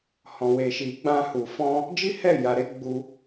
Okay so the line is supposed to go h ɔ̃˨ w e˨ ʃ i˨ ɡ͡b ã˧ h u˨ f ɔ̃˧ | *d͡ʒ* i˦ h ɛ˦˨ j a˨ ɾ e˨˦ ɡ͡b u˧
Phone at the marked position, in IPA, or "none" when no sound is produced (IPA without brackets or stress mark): d͡ʒ